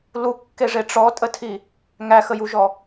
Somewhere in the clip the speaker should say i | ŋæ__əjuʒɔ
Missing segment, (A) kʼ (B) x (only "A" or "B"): B